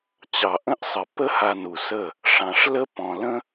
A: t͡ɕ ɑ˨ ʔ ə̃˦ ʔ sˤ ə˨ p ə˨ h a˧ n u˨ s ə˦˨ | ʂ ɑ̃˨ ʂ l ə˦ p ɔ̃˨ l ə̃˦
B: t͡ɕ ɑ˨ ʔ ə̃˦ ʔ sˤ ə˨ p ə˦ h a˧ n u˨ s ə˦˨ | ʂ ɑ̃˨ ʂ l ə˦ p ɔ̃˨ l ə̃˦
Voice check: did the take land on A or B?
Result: B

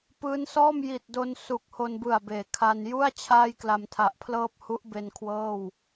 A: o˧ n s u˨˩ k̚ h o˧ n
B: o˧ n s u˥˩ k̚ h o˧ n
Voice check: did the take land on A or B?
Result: A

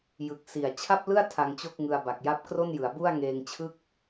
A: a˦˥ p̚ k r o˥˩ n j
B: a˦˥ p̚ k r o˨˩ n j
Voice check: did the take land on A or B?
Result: A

